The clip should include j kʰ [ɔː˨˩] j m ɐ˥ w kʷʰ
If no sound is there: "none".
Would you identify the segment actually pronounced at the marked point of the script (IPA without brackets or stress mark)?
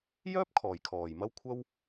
ɔː˨˩